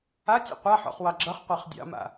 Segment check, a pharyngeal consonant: present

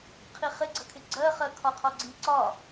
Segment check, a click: present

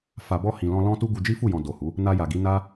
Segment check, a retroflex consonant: absent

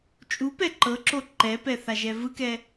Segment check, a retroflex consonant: absent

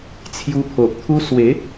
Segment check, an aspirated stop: present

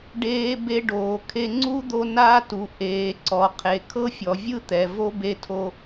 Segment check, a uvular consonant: present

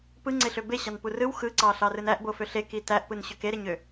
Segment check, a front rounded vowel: present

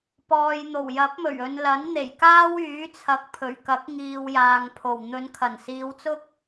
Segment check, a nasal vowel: absent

